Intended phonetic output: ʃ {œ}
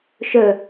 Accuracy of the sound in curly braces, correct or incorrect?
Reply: correct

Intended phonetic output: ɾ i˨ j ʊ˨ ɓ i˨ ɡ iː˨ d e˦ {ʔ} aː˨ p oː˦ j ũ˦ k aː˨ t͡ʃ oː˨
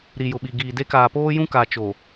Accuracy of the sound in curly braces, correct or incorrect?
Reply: incorrect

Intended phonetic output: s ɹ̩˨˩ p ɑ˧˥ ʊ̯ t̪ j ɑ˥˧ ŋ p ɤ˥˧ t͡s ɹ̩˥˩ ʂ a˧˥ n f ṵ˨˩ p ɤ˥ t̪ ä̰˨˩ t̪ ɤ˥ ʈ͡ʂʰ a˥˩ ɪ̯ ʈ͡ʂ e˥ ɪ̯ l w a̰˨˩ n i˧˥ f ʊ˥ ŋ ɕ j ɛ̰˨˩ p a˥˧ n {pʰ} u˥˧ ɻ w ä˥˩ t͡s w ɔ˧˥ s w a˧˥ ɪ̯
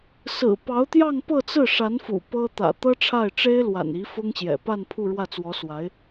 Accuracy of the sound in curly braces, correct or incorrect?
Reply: correct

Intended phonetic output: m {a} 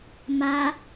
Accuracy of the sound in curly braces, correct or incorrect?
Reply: correct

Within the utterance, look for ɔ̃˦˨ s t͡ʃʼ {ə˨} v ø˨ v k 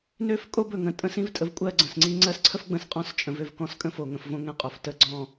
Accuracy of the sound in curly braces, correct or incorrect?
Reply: incorrect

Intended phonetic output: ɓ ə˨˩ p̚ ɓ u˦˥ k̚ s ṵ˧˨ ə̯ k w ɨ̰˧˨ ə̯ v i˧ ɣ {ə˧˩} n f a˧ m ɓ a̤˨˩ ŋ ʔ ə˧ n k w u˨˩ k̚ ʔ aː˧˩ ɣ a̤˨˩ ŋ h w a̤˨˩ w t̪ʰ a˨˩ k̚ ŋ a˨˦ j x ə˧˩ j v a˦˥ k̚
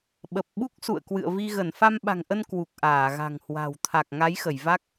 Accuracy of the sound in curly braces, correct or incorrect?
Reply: correct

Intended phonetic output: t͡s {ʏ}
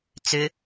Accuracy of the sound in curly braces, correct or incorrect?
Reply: correct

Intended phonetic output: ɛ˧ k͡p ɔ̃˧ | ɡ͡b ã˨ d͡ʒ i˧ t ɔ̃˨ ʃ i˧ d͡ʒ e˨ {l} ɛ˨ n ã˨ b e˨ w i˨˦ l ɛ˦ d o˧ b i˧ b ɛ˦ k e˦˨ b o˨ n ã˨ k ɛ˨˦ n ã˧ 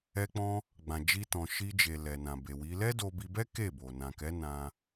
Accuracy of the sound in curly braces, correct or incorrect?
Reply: correct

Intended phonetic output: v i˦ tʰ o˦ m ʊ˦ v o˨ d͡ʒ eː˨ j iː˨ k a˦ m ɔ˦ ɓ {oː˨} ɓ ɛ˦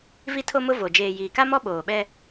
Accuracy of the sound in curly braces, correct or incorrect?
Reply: correct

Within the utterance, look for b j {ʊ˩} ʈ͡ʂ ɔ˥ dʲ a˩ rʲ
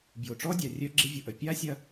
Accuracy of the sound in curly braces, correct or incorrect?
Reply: correct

